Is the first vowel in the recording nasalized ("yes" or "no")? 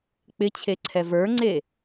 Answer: no